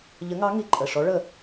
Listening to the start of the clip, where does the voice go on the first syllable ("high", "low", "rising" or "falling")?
rising